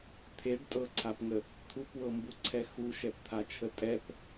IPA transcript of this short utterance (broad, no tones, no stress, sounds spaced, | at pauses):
t̪ʰ e ɖ tʼ ɤ ǀʰ a p ŋ ə | t̪ʰ u p w ɤ m b u ǀʰ ɛ x u ʃ ɛ p t̪ʰ a t͡ʃʰ ə tʼ ɛ p